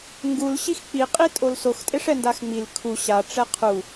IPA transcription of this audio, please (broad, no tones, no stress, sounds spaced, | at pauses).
ŋ ɡ u l ɕ i x k͡p i qʼ i tʼ o l s o x tʼ e ʂ ɛ n d a x ŋ͡m i l kʰ u ɕ a ʈ͡ʂ ɛ qʰ u